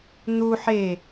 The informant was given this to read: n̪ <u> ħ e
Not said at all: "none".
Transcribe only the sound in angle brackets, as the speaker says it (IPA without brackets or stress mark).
u